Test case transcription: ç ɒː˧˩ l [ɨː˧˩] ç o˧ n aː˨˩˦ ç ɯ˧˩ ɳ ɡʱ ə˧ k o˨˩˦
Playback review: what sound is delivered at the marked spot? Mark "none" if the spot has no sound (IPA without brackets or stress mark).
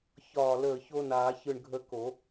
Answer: əː˧˩